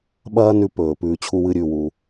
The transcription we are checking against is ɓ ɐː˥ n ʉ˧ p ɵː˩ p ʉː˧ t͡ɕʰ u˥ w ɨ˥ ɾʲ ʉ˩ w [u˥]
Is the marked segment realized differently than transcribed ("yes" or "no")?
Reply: yes